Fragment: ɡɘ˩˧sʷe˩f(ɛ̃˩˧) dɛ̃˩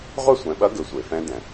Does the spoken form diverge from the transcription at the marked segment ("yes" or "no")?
yes